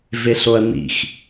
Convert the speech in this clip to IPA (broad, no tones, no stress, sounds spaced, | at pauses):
v e ɬ o ɐ̯ n ḭ x